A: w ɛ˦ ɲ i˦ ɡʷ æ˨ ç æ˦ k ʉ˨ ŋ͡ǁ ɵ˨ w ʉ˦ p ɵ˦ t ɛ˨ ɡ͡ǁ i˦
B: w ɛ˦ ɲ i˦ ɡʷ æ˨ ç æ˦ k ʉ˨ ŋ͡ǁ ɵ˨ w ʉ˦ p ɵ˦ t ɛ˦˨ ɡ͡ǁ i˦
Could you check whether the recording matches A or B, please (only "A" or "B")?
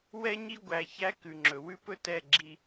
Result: B